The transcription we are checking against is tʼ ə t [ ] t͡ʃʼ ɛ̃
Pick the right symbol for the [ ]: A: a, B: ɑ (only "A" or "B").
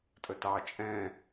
B